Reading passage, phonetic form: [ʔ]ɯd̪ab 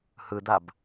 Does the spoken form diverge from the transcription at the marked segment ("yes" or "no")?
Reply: yes